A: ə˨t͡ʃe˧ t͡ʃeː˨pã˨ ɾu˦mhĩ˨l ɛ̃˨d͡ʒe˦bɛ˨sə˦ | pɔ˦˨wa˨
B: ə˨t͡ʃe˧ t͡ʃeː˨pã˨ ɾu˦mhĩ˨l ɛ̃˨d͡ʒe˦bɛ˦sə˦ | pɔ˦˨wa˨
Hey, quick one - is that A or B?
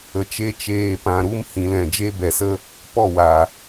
A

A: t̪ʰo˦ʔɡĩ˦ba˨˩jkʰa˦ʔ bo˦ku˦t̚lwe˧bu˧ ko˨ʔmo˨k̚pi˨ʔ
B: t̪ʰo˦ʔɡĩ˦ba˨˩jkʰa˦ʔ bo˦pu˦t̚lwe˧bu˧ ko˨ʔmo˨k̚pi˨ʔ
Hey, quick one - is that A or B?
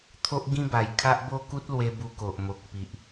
A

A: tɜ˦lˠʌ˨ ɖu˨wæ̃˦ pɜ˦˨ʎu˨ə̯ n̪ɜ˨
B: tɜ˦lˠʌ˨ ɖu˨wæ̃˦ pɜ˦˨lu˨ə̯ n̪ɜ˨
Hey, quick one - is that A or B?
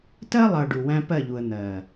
A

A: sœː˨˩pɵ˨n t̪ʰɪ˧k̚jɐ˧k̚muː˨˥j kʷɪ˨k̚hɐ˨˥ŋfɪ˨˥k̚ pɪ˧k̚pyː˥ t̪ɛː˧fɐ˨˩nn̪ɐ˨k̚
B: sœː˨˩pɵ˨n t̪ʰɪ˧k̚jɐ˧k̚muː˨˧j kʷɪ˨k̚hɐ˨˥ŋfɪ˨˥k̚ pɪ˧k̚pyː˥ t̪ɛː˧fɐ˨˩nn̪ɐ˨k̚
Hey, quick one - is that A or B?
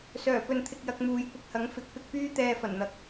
B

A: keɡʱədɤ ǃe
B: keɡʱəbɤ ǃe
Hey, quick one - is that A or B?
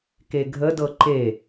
A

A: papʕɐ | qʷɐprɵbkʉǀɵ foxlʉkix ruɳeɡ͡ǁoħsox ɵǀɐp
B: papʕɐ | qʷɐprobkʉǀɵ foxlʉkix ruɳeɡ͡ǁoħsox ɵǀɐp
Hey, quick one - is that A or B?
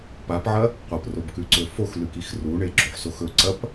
B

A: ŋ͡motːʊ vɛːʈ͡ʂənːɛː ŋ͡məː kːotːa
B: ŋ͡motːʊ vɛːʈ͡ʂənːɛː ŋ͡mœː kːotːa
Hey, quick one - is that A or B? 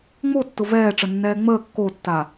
A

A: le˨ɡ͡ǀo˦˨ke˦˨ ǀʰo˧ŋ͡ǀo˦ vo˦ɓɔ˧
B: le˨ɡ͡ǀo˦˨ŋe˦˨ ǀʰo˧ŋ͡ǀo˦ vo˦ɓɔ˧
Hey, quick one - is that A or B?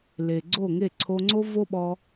B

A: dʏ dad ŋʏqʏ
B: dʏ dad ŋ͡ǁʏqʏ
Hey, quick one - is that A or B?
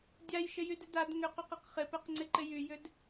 A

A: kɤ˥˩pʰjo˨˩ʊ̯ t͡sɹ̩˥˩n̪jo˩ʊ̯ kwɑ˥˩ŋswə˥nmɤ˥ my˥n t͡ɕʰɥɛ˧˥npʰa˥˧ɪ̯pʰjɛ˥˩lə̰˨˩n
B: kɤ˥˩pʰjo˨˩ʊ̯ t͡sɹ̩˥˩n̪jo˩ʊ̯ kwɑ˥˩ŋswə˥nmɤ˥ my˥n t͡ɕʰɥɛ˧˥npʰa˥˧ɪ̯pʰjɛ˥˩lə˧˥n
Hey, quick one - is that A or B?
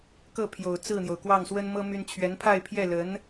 B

